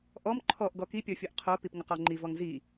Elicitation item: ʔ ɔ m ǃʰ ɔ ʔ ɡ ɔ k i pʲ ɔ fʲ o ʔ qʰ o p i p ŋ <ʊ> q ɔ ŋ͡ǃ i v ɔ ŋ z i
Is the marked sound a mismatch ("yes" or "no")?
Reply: no